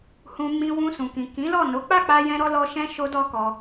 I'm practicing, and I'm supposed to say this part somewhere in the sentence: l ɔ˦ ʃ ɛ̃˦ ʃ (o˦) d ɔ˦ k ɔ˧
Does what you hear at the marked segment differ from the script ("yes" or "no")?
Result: no